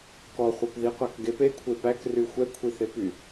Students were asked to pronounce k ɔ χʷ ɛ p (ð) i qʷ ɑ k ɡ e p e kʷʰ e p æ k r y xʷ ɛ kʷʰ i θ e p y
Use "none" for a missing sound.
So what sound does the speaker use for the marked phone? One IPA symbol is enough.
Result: ð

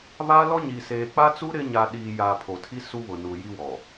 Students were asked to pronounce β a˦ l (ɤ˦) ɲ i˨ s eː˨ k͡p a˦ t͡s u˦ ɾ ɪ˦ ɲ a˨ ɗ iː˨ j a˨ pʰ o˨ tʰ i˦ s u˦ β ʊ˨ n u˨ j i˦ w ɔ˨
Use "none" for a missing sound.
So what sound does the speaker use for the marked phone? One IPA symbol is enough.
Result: ɔ˦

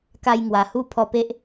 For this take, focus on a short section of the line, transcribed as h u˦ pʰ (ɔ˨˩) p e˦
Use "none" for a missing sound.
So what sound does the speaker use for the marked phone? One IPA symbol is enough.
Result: ɔ˧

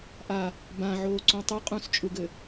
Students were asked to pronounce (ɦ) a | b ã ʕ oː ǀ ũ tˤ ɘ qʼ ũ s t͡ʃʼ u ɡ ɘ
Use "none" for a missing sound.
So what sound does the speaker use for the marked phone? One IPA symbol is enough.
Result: ʔ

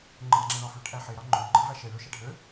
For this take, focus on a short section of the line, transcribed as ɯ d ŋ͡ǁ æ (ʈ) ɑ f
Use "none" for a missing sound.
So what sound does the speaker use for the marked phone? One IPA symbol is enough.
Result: ɳ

